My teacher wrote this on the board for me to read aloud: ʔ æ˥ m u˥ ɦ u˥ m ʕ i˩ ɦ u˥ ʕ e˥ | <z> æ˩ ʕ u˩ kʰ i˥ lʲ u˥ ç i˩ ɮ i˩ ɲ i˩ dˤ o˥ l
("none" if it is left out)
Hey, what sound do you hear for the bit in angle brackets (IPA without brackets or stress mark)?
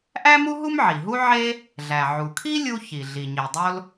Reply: ɮ